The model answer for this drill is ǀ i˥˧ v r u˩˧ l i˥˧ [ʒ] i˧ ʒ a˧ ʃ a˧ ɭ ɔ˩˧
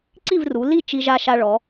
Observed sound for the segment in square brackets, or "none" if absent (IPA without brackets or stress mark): t͡ʃ